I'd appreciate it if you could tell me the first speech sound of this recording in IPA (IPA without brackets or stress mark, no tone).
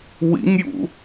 w